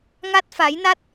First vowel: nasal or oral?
oral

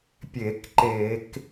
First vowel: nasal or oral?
oral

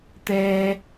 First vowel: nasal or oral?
oral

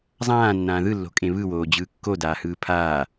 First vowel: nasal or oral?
nasal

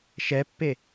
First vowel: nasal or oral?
oral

